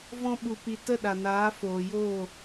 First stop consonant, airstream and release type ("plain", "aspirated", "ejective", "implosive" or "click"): implosive